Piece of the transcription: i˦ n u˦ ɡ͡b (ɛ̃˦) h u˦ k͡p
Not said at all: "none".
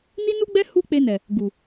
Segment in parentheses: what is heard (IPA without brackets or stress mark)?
ɛ˦